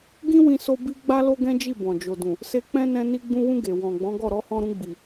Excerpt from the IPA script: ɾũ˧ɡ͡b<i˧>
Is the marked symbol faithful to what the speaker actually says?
no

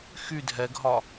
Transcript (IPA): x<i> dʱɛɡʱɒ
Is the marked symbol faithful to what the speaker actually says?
no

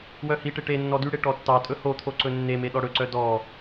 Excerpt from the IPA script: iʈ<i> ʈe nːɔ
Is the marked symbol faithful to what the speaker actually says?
no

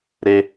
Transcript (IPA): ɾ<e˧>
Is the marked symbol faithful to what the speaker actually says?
yes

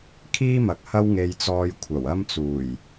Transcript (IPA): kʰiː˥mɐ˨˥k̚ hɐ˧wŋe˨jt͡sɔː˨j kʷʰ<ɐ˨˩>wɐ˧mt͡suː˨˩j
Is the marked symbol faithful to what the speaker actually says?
yes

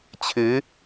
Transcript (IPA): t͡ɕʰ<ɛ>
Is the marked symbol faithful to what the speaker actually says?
no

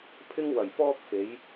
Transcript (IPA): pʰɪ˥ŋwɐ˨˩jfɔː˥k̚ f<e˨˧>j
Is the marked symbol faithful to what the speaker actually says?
yes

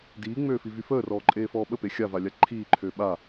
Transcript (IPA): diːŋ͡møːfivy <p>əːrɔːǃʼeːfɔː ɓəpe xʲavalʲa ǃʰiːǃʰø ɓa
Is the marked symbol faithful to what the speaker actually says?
no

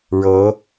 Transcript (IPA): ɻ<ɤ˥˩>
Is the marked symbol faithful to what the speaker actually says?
no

